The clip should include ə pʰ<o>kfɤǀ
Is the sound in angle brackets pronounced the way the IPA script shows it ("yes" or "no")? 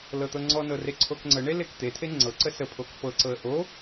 yes